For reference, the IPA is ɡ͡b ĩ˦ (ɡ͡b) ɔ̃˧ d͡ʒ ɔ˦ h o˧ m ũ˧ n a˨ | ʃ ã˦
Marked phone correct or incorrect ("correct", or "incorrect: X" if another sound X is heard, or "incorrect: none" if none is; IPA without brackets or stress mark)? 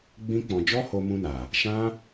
incorrect: k͡p